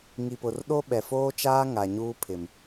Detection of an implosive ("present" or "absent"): present